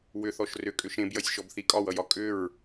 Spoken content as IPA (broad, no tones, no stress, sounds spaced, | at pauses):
w ʏ θ ɔ ʃ r ʏ kʼ ʏ ʃ ẽ b j ʌ sʲ ʃ ɔ b θ i kʼ ɒ w ʌ j ɒ kʼ ʏ ɹ